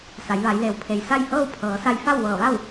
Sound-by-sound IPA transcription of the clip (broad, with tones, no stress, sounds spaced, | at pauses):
s a˩˧ j ʋ a˩˧ j l e˩ w pʰ e˩ j s a˥˨ j h ɤː˥˨ w pʰ ɤː˩˧ s a˧ j f a˥˨ w ʋ ɤː˧˩ ʋ a˥˨ w